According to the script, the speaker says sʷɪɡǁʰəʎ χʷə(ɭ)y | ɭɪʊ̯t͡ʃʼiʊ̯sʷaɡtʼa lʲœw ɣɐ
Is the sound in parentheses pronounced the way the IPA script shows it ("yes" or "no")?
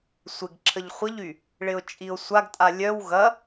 no